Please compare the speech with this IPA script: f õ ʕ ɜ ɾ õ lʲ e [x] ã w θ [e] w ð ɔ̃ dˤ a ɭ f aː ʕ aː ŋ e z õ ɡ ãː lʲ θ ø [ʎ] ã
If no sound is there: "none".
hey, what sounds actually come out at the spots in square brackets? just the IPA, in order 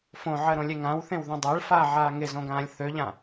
ŋ, ẽ, ʎ

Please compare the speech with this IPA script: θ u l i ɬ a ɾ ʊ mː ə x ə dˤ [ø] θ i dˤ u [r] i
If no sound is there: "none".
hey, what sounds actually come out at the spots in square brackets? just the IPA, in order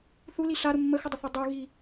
ə, ɣ

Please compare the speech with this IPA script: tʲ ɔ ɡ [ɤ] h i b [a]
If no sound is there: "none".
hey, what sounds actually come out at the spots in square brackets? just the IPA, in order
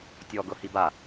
ɤ, a

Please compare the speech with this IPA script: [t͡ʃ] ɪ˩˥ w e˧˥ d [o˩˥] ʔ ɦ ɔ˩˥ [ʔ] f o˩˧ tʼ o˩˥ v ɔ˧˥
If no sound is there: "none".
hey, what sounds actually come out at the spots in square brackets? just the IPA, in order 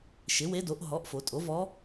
ʃ, o˩˥, ʔ

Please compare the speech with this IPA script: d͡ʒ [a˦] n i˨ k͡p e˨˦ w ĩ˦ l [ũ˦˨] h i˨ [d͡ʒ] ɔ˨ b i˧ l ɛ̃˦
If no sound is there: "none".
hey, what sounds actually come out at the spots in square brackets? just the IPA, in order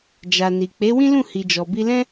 a˨, ũ˦˨, d͡ʒ

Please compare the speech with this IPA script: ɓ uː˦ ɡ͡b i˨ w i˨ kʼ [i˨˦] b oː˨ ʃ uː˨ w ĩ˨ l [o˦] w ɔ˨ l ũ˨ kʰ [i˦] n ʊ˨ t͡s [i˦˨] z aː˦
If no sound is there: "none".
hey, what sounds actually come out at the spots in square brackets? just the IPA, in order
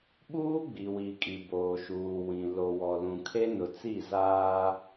i˨, o˨, e˦, i˦˨

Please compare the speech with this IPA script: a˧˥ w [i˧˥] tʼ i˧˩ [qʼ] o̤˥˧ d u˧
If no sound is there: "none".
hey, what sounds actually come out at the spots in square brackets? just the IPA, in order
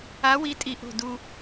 i˧˥, ʔ

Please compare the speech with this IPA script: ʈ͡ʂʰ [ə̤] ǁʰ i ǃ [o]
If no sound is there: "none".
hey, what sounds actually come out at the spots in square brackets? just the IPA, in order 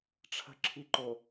ə̤, o

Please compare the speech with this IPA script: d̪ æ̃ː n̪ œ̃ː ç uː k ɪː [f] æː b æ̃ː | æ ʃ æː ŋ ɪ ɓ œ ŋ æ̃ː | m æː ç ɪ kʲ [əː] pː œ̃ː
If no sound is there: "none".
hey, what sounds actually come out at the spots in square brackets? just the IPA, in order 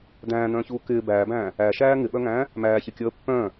b, əː

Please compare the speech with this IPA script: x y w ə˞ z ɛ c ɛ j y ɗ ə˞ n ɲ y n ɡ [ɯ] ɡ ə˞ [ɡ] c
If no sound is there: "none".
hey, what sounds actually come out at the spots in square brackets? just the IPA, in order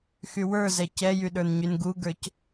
u, none

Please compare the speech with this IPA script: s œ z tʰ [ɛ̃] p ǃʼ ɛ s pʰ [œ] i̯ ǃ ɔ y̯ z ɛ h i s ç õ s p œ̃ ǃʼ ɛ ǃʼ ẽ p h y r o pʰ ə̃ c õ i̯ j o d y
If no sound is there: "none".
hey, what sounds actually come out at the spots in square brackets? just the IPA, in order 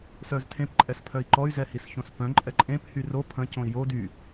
ẽ, œ

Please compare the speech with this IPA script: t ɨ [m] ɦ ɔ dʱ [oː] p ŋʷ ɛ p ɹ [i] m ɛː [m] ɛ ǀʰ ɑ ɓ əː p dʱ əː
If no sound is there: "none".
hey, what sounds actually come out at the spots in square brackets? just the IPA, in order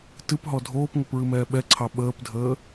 p, oː, ɨ, ɓ

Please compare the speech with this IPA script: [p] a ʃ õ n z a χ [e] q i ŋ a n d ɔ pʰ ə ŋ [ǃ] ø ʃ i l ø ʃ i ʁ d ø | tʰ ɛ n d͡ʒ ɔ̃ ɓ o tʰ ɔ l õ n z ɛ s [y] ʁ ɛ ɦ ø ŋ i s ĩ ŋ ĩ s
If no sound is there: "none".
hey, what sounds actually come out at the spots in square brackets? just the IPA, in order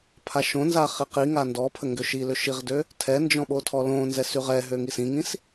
pʰ, i, ɡ, y

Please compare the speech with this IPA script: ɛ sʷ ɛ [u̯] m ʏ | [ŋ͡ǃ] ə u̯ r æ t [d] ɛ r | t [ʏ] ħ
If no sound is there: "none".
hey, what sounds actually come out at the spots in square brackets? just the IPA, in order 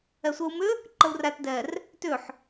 u̯, ǃ, d, ʏ

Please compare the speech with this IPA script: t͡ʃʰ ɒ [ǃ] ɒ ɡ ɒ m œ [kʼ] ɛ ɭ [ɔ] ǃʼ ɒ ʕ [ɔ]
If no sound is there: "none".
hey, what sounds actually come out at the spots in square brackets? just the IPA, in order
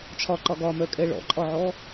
ǃ, kʼ, ɔ̰, ɔ

